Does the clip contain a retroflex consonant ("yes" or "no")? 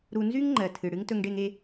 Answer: yes